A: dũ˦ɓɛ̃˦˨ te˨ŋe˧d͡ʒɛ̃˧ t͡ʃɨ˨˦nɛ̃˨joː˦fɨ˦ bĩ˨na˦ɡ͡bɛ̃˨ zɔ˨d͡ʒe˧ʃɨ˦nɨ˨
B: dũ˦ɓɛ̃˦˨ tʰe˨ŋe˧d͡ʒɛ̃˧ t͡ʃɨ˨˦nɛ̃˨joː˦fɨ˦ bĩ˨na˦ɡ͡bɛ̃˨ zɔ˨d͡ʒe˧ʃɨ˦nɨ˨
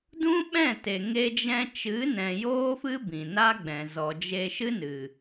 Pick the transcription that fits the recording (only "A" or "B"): A